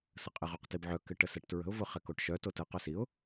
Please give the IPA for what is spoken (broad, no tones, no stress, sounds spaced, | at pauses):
s ə qʼ ɪ ʁ o q t i b ʕ œ k ɪ ʈ ə s ɛ ʈ t ɹ ə̤ ʊ̯ v ʊ χ ɛ k o ʈ ʃ œ t o t ə q œ s i ʊ̯